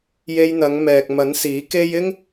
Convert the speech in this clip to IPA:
je˧jn̪ɐ˨˧ŋmɛː˨k̚mɐ˨˥n siː˨˥ke˥j ɪ˥ŋ

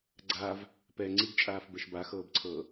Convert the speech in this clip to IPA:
ɡ͡ǀaːv | pɛ ŋ͡ǀiɡt͡ʃʼaːfbɛʃ baxɤːbǀʰɤː

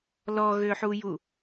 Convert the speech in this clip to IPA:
lɔɣøħuju

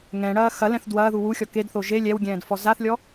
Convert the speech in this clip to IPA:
ŋɛ̃ɽɐː xɐlɛ̃θ dwɐːðu wuxʲɔ kedθo ʒe lʲɛwɡʲɛ̃ːdfɔ zaθlʲɔ

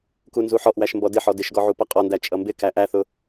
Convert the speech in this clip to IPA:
kunzuħɔʔwæʃ mbɔdɪħɔ dɪʃɡɔ ʕupʌqʼɔndæ t͡ʃʼʌmbɪkæ ʔæθʊ

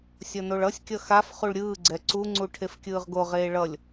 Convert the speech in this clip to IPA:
sʲʌnoɭʌsʲkʲʌ xaf χuɭɾʲɯːɡ͡ǀɛ ǀuŋ͡ǀu ʈʰefkʲɯːʁɡoʁeː ɭʌlʲ

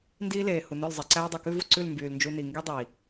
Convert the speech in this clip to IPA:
ndiː˦leː˨ hu˨ nœ˦˨l zˤe˨ǀæː˦dˤʉ˨ kʉ˦vu˧ǀʉ˦˨l mbyː˨lnd͡ʒu˧ni˨ ŋɡi˦dˤi˨

